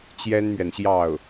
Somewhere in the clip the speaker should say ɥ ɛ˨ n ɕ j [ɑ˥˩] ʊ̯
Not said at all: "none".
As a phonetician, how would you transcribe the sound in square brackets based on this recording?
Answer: ɑ˥˩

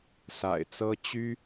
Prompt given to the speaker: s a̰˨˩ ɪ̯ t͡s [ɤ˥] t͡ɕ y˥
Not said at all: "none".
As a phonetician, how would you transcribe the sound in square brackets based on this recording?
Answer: ɤ˥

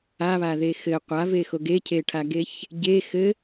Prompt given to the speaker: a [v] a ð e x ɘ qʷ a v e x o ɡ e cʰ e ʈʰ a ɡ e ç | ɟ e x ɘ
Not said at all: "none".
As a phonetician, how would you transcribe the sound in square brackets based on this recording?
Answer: β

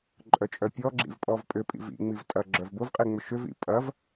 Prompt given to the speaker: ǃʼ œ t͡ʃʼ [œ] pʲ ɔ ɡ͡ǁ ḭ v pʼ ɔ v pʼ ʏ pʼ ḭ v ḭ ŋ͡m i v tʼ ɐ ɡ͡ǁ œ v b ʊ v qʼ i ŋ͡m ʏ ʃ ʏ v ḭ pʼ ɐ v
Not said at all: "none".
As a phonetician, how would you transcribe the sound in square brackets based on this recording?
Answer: œ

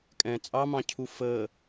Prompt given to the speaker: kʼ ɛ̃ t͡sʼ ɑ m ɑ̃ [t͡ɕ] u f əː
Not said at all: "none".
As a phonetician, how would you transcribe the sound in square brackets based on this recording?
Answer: cʰ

